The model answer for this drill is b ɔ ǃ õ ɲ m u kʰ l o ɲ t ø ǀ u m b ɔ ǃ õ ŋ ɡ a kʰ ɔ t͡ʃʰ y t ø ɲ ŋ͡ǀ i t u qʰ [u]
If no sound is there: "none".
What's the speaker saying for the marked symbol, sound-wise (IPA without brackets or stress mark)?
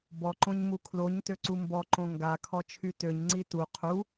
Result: u